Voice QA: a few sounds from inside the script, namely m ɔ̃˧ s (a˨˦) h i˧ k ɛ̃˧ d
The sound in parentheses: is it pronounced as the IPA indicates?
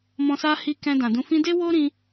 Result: no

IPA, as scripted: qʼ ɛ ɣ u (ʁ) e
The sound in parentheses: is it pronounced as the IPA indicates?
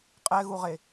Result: yes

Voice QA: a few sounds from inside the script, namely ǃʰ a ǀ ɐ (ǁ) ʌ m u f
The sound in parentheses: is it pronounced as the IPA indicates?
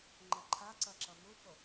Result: yes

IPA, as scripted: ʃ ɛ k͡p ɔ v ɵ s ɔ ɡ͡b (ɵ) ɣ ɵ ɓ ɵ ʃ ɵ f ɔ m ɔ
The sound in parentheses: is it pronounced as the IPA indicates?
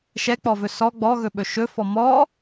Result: no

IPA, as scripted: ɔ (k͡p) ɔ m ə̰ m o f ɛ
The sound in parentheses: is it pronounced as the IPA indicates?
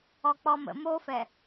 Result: yes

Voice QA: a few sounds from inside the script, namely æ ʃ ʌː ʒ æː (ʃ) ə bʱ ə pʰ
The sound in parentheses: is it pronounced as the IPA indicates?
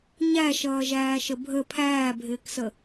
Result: yes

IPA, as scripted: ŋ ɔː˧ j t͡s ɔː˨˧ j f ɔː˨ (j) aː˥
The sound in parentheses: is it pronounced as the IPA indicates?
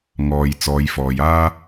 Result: yes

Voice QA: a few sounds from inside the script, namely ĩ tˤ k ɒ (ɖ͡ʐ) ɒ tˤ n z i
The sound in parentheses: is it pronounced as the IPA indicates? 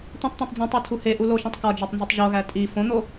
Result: no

